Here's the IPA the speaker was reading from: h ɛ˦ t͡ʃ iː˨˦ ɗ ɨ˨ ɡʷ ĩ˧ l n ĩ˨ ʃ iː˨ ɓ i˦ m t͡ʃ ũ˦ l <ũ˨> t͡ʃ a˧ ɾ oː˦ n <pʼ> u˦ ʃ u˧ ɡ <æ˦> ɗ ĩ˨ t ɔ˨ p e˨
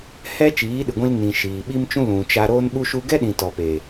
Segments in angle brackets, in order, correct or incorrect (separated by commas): correct, incorrect, incorrect